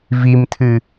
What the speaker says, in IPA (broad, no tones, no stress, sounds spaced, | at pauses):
v i m tʰ ɨ